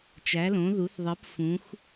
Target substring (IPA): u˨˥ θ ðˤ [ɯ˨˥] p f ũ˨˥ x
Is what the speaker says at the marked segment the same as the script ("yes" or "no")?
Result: yes